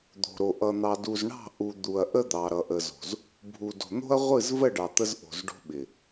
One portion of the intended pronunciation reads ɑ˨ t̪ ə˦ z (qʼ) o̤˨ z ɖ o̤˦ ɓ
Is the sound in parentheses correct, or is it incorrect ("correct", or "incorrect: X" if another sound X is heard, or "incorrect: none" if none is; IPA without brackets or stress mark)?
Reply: incorrect: ʔ